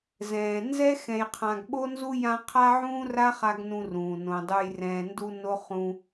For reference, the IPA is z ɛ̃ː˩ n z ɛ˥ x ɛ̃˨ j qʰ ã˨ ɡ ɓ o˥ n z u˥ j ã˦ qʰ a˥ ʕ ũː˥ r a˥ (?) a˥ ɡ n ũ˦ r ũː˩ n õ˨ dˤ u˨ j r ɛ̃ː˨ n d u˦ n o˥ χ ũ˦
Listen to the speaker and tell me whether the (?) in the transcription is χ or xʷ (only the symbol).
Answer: χ